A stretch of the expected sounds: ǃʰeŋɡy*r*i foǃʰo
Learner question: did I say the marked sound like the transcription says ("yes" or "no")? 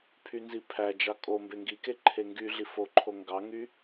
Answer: no